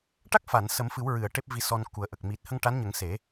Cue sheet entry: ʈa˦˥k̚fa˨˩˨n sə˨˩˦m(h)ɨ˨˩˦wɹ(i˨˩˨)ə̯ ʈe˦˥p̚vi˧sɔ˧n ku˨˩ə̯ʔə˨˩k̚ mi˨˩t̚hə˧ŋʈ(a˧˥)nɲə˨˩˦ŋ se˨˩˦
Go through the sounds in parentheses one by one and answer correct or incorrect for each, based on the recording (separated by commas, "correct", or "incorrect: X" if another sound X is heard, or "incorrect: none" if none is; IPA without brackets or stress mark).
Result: incorrect: f, incorrect: ɨ˨˩˨, correct